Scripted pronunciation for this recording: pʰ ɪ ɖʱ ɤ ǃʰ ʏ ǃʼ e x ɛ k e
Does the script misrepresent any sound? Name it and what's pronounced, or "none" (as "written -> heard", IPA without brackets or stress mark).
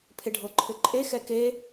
none